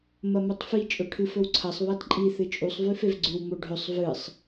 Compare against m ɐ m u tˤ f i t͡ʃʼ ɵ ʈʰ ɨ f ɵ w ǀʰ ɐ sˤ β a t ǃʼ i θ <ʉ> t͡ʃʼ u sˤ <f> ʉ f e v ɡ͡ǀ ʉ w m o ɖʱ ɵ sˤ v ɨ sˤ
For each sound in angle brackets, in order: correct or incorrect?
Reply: incorrect, incorrect

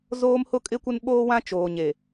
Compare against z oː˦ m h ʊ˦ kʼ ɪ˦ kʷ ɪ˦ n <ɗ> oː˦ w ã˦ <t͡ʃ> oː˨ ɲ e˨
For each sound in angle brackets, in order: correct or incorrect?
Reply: incorrect, correct

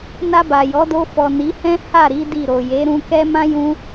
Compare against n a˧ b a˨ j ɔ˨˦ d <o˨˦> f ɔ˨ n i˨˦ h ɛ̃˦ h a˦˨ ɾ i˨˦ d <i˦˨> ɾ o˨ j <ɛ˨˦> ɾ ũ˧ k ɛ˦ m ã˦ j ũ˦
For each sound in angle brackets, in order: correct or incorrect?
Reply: incorrect, correct, incorrect

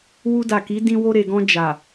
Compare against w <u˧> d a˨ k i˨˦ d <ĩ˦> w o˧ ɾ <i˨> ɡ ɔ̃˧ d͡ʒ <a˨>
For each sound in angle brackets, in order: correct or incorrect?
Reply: correct, correct, incorrect, correct

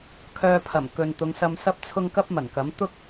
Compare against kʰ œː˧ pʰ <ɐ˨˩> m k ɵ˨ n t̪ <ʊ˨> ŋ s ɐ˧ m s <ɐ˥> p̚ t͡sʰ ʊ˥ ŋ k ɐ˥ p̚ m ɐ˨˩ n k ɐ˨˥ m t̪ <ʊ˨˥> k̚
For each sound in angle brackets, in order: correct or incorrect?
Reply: correct, incorrect, correct, incorrect

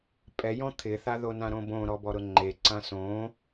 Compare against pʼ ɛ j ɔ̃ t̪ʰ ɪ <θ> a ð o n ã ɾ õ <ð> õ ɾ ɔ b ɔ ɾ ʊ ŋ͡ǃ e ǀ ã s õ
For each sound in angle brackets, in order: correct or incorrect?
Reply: correct, incorrect

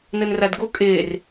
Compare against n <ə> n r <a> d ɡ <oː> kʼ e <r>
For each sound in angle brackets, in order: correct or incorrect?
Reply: correct, correct, incorrect, correct

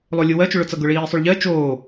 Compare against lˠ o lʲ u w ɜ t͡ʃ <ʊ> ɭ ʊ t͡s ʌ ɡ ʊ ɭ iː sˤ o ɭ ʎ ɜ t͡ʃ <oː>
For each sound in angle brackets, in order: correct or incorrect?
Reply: correct, correct

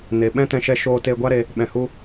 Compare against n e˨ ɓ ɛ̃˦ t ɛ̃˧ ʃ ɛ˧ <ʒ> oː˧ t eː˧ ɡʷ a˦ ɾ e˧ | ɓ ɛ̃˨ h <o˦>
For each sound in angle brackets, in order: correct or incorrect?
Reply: incorrect, incorrect

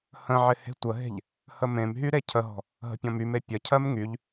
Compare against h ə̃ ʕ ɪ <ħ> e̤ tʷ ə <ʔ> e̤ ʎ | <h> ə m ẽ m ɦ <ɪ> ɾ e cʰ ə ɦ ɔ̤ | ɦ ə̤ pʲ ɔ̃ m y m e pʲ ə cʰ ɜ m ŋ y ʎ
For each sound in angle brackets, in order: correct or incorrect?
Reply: incorrect, incorrect, correct, incorrect

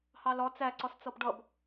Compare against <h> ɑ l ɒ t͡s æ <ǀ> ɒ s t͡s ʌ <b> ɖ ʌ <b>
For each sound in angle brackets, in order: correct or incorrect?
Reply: correct, correct, correct, correct

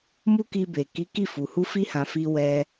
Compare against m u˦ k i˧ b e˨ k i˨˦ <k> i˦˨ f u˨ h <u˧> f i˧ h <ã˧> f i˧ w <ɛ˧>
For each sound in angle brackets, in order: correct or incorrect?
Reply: correct, correct, incorrect, correct

